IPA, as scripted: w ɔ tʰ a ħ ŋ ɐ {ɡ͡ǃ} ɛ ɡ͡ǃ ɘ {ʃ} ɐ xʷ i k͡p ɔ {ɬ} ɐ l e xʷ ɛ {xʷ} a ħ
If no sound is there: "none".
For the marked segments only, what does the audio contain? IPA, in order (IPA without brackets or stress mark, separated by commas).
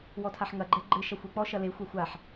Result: ɡ͡ǃ, ʃ, ʃ, xʷ